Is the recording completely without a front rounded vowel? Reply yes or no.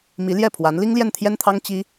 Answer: yes